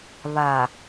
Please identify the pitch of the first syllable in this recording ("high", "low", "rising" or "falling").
low